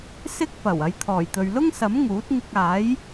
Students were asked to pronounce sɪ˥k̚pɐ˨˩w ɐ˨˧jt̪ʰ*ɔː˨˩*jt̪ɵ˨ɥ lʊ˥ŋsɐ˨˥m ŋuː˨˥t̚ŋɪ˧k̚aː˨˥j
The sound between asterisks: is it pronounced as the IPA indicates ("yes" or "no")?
yes